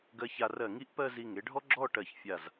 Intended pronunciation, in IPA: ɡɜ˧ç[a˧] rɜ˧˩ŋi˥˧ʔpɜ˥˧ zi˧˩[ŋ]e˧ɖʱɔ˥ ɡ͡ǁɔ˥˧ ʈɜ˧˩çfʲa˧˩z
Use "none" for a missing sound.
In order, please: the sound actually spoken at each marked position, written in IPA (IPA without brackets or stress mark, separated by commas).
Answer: a˧, ŋ